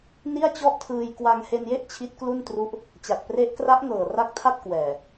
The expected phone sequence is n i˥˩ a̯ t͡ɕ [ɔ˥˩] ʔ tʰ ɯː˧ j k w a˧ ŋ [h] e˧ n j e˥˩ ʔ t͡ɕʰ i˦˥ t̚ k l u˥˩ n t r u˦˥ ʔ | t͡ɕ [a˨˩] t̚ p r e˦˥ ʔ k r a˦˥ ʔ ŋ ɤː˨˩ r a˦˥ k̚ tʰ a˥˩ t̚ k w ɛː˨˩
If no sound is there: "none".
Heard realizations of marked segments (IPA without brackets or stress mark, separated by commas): ɔ˥˩, h, a˨˩